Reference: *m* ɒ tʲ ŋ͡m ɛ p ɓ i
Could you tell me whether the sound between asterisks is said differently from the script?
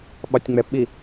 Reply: yes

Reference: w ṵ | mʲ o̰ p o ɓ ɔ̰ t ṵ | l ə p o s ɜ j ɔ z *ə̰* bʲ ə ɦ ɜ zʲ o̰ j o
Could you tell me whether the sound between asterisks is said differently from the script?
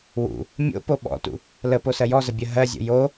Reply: yes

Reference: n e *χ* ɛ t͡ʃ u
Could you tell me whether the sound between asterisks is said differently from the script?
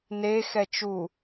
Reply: yes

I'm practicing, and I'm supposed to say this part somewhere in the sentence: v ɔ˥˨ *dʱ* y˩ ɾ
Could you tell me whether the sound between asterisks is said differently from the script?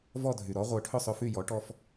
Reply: no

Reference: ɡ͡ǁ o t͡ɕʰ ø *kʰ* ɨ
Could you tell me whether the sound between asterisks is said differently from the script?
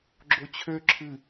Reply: yes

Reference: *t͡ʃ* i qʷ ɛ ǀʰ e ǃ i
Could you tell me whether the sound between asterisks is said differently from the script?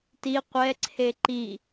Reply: yes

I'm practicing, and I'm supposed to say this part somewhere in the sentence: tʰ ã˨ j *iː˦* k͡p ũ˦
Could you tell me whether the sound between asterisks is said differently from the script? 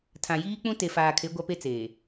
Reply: no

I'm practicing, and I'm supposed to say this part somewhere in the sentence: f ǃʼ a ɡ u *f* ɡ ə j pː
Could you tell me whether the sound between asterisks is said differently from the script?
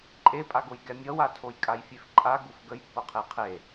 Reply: no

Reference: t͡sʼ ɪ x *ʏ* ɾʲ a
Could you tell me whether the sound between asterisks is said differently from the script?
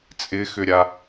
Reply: no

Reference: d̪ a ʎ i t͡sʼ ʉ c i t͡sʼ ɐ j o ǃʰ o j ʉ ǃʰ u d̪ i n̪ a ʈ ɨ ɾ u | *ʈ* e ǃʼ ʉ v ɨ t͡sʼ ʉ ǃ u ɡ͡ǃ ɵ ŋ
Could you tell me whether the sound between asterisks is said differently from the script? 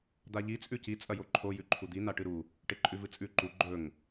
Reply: no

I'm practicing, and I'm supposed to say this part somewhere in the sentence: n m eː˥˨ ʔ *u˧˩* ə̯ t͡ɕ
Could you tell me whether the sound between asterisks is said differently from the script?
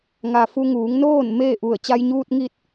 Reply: no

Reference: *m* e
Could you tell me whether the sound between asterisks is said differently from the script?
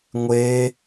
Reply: yes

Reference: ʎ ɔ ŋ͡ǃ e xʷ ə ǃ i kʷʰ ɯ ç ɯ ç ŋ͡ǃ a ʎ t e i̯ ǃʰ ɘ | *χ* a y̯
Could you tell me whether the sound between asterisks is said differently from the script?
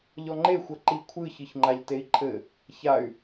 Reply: yes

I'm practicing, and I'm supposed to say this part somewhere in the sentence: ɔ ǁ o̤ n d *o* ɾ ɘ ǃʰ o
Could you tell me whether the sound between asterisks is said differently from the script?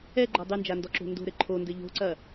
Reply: yes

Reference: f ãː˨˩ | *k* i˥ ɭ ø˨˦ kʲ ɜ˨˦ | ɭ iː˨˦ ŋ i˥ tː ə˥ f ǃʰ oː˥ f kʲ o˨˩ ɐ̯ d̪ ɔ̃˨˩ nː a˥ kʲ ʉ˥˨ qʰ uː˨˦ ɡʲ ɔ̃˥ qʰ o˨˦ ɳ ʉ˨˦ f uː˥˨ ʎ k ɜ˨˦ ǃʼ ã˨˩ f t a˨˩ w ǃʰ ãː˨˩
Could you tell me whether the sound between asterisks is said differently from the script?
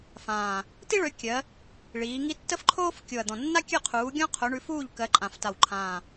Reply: yes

